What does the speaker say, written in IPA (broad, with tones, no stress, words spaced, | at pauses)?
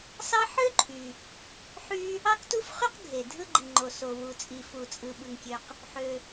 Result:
sɑ˥ ħø˥ǃʰy˩ | ħy˥ | ɑ˥ktu˥fχy˥q ɡʱe˩ dʱɯ˥ɡ͡ǃi˩ŋ͡ǃo˩ so˩ wu˩t͡sʼi˩fu˩t͡sʼɯ˩ ɓɯ˩ŋkʲø˩q | ħø˩